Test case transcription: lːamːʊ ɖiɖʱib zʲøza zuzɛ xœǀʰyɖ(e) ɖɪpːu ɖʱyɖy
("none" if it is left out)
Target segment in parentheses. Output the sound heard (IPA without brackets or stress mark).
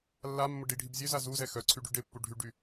y